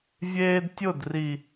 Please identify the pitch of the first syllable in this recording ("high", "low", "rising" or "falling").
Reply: high